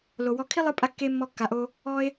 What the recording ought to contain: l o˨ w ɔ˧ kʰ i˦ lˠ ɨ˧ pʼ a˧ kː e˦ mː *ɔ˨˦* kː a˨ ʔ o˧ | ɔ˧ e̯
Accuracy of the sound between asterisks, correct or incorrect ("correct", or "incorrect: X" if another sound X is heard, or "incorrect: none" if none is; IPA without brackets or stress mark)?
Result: incorrect: ɔ˧